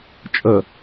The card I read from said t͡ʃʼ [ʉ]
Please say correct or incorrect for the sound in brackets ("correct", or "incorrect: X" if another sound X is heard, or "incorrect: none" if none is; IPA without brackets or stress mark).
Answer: incorrect: ə